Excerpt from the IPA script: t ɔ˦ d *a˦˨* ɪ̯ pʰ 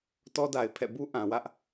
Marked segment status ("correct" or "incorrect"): incorrect